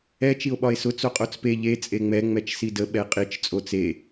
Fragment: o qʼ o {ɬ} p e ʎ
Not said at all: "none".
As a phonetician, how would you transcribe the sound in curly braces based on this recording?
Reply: t͡s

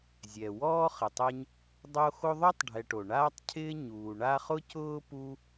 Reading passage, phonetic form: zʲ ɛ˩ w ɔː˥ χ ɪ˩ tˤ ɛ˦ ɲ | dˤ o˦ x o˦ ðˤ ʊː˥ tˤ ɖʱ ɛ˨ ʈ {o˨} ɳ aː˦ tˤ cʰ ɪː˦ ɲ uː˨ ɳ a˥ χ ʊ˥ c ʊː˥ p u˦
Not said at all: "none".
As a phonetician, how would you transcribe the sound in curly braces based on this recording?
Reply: o˩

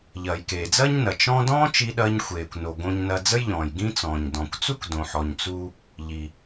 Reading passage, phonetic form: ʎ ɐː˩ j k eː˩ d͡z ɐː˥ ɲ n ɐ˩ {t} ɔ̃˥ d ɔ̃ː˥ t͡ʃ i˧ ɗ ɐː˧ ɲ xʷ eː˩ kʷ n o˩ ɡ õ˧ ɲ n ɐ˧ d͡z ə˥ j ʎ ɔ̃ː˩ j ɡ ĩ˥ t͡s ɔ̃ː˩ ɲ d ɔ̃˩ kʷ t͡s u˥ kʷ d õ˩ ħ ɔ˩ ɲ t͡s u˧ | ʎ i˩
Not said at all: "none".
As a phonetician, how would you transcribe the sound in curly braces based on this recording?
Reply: t͡ʃ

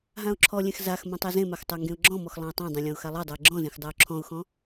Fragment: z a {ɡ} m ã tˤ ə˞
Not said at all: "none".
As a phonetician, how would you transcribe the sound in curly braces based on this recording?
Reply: x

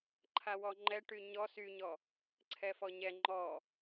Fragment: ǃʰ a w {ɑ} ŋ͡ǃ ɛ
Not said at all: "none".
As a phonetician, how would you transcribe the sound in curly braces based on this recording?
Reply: ɔ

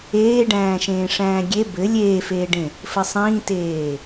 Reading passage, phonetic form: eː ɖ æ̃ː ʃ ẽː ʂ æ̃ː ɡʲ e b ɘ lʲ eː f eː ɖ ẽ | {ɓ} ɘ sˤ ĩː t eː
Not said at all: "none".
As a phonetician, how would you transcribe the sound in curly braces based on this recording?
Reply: f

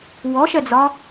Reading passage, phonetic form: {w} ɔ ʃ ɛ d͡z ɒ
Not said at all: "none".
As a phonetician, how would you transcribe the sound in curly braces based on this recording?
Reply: w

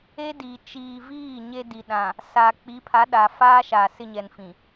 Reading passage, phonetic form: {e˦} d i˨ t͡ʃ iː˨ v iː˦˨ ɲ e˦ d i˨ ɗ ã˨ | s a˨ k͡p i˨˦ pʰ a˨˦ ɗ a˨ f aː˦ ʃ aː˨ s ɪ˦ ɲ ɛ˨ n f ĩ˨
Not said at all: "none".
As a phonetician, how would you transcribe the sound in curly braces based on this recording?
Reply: e˦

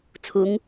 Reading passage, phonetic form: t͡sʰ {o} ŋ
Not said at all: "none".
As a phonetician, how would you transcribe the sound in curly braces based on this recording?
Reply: u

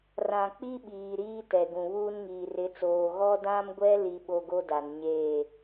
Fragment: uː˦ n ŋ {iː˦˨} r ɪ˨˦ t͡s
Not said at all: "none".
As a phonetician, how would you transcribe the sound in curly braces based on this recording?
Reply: iː˨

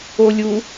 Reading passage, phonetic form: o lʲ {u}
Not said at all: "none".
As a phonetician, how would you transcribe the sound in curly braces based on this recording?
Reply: u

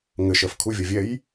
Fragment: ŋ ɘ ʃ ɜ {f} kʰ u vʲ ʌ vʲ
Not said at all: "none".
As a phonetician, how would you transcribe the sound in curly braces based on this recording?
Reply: f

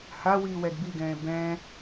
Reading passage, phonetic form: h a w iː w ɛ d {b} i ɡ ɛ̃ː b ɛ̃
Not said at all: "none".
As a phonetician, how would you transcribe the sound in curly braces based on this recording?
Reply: b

